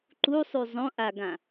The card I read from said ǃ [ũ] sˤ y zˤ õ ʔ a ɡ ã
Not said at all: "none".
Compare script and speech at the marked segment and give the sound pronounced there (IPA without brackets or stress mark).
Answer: u